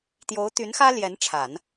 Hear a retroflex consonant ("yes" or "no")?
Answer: yes